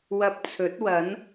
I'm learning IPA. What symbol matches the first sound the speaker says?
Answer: w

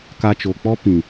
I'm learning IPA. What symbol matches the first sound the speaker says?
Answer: k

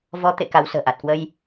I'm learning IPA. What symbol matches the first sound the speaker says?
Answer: v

